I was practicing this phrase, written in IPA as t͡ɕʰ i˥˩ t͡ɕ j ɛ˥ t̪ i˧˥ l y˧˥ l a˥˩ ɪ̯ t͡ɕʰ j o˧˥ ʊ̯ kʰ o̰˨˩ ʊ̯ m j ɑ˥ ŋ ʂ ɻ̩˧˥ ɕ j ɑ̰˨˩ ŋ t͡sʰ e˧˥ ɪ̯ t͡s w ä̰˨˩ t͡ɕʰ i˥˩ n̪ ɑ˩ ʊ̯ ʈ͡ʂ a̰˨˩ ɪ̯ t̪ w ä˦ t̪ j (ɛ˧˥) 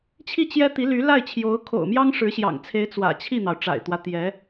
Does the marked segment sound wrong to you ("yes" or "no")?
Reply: no